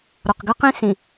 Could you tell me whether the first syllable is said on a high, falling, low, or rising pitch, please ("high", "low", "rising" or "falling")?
low